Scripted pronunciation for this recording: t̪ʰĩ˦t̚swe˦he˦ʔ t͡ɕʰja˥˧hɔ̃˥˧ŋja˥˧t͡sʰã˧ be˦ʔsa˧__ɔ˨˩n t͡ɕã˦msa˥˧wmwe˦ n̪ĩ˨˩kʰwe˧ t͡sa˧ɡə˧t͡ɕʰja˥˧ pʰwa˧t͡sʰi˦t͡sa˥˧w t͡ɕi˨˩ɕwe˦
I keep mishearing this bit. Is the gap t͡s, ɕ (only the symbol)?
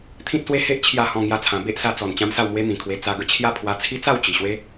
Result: t͡s